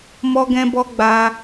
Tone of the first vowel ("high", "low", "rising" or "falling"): high